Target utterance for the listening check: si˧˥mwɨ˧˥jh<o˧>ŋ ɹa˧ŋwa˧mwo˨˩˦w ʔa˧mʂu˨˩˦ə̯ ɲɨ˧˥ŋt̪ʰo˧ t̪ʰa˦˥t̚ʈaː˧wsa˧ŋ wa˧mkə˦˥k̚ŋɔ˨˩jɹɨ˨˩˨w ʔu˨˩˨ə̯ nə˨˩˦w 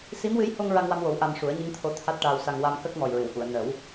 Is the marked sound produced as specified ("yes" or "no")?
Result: yes